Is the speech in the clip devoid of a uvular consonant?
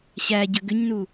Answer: yes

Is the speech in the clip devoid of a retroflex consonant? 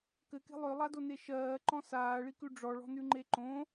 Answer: no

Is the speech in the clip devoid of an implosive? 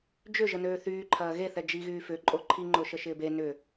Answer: yes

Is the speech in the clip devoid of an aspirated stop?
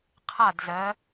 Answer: no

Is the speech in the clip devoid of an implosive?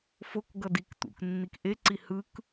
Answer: yes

